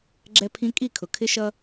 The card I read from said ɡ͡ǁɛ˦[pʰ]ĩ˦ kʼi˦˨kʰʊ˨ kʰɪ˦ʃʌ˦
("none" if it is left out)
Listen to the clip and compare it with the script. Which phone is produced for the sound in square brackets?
pʰ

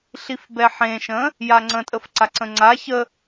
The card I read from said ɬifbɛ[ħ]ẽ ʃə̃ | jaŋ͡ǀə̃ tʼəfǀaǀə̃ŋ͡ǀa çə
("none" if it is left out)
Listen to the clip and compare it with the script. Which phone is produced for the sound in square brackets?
ħ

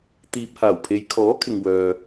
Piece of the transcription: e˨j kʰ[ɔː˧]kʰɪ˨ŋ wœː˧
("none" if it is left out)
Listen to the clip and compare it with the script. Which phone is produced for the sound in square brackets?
ɔː˨˥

